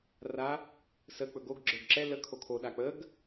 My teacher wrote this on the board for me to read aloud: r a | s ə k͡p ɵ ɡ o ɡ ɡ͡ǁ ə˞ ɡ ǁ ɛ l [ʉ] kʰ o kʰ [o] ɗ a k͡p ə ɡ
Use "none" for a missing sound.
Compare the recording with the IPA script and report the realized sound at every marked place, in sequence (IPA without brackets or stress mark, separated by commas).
ə, o